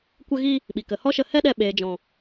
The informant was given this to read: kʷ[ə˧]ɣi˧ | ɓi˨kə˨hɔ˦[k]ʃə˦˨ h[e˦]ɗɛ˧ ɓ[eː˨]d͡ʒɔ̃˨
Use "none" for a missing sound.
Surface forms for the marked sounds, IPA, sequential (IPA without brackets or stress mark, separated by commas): ə˧, none, ɛ˦, eː˨